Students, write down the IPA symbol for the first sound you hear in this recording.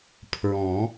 pʰ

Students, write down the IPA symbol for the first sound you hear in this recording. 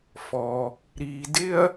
f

